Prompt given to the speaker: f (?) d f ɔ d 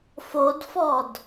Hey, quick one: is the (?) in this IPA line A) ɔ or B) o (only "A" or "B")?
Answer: B